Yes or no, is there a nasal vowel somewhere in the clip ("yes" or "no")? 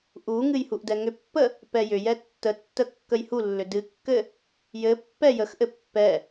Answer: no